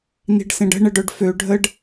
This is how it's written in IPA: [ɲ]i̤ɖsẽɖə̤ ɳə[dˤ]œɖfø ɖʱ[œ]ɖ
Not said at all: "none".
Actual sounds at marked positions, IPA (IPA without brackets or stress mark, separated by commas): n, ɖ, ə